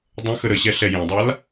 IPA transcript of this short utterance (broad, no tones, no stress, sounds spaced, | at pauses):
dˤ ə̃ x ə ɾ ə ɕ ɛ ɬ ɛ j ẽ dˤ a l